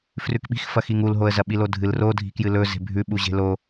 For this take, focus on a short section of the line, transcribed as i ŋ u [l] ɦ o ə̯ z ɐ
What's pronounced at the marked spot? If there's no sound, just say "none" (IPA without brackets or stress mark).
l